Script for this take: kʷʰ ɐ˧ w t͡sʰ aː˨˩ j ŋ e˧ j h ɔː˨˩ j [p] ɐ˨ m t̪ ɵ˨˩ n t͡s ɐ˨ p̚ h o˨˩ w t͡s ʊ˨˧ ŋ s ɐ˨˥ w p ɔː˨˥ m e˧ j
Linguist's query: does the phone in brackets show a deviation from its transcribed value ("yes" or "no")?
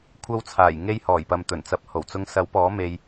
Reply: no